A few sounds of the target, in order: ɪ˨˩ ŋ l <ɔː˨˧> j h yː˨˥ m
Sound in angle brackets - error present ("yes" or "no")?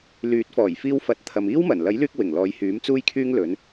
no